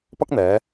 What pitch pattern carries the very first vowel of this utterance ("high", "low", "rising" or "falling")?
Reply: high